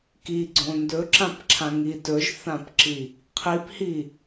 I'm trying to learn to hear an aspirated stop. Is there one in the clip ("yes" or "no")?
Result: yes